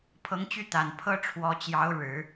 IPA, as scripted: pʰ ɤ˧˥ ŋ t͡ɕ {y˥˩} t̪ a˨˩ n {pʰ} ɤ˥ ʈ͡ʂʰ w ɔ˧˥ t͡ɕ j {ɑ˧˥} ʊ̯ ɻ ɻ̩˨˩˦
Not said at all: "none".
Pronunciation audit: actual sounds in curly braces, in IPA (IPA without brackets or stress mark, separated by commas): y˥˩, pʰ, ɑ˧˥